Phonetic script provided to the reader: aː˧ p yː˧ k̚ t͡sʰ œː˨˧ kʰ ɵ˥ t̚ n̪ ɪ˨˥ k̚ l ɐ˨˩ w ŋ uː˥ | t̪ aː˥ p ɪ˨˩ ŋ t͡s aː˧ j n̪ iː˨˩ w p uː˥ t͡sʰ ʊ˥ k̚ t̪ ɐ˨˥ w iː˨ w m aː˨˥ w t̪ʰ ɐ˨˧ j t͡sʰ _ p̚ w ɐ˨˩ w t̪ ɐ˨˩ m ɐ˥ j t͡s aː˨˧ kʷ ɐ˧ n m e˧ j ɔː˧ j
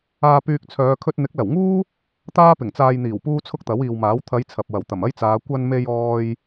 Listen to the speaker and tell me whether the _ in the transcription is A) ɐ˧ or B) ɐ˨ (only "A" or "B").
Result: B